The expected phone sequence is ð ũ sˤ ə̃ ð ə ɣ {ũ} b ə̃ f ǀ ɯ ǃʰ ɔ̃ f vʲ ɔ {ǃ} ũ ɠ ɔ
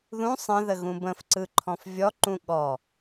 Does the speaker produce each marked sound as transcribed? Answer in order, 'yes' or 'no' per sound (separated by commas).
yes, yes